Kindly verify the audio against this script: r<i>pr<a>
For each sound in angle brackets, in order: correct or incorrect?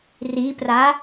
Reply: correct, correct

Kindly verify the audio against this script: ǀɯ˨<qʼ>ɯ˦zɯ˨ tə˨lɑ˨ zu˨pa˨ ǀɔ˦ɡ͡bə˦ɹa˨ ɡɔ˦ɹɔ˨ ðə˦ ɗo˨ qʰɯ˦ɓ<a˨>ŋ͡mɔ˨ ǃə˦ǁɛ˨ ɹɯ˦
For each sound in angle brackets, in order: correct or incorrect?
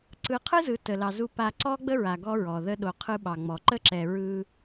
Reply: incorrect, incorrect

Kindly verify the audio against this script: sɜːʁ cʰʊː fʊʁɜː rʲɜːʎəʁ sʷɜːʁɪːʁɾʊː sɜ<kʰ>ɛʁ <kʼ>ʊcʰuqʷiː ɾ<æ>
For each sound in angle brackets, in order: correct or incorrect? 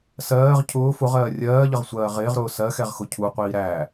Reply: incorrect, incorrect, correct

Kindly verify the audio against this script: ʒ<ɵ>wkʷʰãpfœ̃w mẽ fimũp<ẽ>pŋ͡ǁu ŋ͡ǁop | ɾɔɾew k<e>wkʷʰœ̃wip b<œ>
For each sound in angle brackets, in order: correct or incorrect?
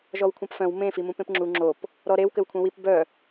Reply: incorrect, correct, incorrect, correct

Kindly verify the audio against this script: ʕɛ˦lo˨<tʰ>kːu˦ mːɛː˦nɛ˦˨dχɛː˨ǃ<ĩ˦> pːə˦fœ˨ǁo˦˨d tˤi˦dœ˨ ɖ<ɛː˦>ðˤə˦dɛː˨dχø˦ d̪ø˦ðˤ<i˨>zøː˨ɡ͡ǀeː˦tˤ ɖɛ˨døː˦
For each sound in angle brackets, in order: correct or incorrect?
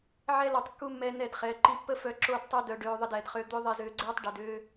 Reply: incorrect, incorrect, incorrect, correct

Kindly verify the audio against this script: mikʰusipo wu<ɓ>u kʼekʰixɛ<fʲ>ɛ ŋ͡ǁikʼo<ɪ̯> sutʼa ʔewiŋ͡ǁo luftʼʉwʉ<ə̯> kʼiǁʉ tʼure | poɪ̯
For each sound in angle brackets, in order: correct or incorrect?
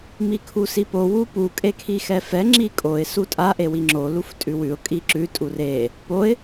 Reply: incorrect, incorrect, correct, incorrect

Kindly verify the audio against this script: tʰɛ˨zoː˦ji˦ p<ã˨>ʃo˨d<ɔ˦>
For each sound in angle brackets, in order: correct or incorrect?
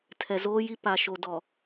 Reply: incorrect, incorrect

